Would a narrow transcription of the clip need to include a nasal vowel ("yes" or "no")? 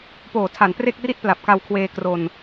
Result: no